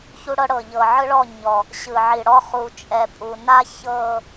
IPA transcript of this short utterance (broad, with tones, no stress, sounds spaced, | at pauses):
ç u˦ ɽ ɤ˦ ɽ ɤ˨ ʎ ɤ˨ ʕ ɯ˦ ɭ ɔ˦˨ ɲ ɔ˨ | ɕ ɯ˨ ʕ i˨ ɽ ɔ˦ χ u˨ t͡ʃʼ ɛ˨ pʼ u˨ n a˦ ç ɤ˦˨